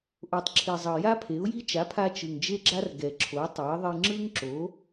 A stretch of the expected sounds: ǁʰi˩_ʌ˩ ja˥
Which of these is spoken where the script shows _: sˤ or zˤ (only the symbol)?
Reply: zˤ